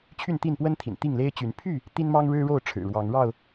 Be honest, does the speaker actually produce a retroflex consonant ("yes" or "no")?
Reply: yes